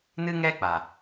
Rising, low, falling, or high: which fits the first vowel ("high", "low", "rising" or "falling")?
high